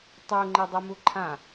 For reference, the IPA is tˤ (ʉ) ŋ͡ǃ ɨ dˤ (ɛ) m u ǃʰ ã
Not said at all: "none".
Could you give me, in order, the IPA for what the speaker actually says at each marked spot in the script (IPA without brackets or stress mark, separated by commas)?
u, ɛ